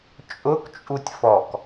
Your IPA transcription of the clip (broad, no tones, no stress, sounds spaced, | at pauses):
t͡ʃʼ ʊ k t͡ʃʼ u tʲ f ɔ k